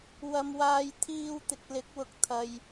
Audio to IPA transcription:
w ɐ˧ m w aː˧ j t̪ʰ iː˧ w t̪ ɪ˨ k̚ l ɪ˨˥ k̚ w ʊ˨˥ k̚ t̪ʰ ɐ˨ j

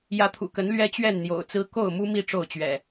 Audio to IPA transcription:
j ä˨˦ t̪ʰ ṵ˨˩ k ə˨˦ n l ɥ ɛ˦ t͡ɕ ɥ ɛ˥˨ n n̪ j o̰˨˩ ʊ̯ t͡s ɹ̩˦ k o˥˨ ʊ̯ m u˦ m i˥˨ ʈ͡ʂ o˥˨ ʊ̯ t͡ɕ ɥ ɛ̰˨˩

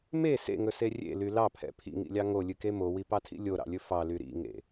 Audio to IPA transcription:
m e s ḛ ŋ ɵ s e rʲ ḛ l y l ɑ pʰ ɛ̰ pʰ ḭ ŋ ḭ lʲ ɑ ŋ o lʲ ɨ k e m o w i p ɑ tʰ ḭ lʲ o ɾ ɑ̰ lʲ ɵ f ɑ l y ɾ ḭ ŋ ḛ

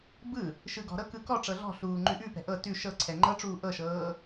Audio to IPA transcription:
b ɯ | ʃ ɯ ɡ ɔ̤ ɾ ɤ k ɯ k ɔ ʈ͡ʂ ɤ ɮ ɔ̤ ɬ uː ŋ͡ǃ ʉ ʔ ʉ p ɛ̤ ʔ ɤ t ʉ ʃ ɤ ǀʰ ɛ ŋ͡ǃ ɤ ʈ͡ʂ uː ʔ ɤ ʃ ɤː

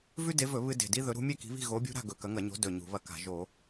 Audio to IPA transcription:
v ʉ˦ d e˨˦ v ɵ˧˩˧ β ɨ˦ d e̤˨˩ d i˦ ð ɵ˨˦ ɾ ṳ˨˦ mʲ e˥˨ k i̤˨˦ β i̤˥˨ ɣ o˨˦ bʲ ṳ˦ ɾ a̤˥˨ ɡ ɵ˨˩ k ɐ˨˦ ŋ ɐ˧˩˧ ɲ o̤˨˦ d ɵ˨˩ ɲ ṳ˧˩˧ β ɐ˥˨ k a̤˧˩˧ ʒ o˧˩˧

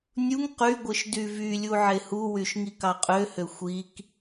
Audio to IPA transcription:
nʲ u ŋ q y ɡʷ ɯ ʃ d y v y lʲ u ʕ e h u w y ʃ ŋ i k ɑ qʼ ø h ø xʷ i k

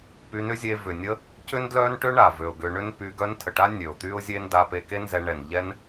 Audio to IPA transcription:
p y˧ n ʏ˦ zʲ e˧ v ʏ˨ nʲ ə˧ | c ʏ˦ n d l œ˦ n ʈ ø˦ ɳ a˨ v ø˨ ʊ̯ ɡ ʏ˧ ɳ ʏ˦ n p y˧ ɡ œ˧ n tʰ ə˨ ʈ a˦ nʲ ø˨ ʊ̯ t̪ y˦ ʊ̯ zʲ e˦ n d a˧ p e˧ k e˦ n z ɛ˧ ɳ ɛ˨ n ʎ ɛ˦ n

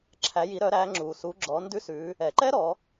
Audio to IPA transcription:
ǁʰ æ˩˧ j i˩˧ ɾ œ˩˧ ɾ æ˩˧ ŋ͡ǁ u˩ s u˩˧ ɡ͡ǁ ɔ˩˧ n d ʉ˧˥ s ʉ˩˧ | ɛ˩ ǃ ɛ˥ ɾ ɔ˩˧

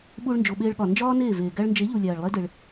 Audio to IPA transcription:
ɓ uː˧ ɭ n d͡ʒ o˨ ɓ eː˧ ɭ ɠ ɒ˨ n d͡ʒ ɒː˦ n eː˦˨ v eː˨ ɡ æ˧ ɭ n d͡ʒ e˨˦ ʎ u˨ lʲ æː˨ ɭ lˠ e˦ d e˧ ɭ

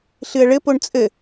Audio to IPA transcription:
ɬ ɨ ə̯ ɭ ɘ p o ɳ t͡sʼ ɘ

